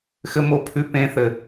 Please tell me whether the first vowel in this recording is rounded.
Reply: no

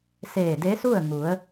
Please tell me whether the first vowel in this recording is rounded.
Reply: no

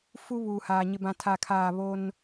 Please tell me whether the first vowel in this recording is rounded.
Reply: yes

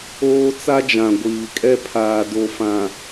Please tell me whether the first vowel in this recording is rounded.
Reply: yes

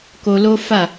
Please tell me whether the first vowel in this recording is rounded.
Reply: yes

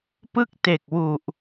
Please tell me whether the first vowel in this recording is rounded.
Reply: no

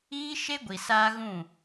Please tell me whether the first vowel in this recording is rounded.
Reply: no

